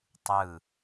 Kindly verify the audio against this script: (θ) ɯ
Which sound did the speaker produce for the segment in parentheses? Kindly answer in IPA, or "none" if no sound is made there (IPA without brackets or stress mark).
tˤ